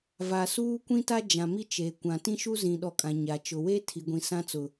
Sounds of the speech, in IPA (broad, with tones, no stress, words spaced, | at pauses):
va˨suː˦kʷĩ˦ta˦ d͡ʒã˨mi˦t͡ʃe˨kʷã˨ tĩ˦ʃu˦zĩ˨ɗɔ˨ kʼã˨ɲa˨ t͡ʃʊ˨we˦tʰi˨ ɡʷĩ˨sã˦t͡sʊ˨